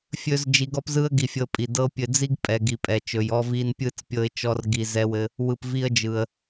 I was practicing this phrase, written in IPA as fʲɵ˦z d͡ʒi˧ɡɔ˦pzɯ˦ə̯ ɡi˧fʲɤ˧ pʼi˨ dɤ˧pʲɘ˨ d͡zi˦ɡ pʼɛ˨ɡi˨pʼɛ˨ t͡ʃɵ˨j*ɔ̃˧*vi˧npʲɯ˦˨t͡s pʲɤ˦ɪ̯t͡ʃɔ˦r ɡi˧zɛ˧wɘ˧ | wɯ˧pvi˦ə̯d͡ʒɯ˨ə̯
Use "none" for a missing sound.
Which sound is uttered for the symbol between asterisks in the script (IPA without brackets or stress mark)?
ɔ˧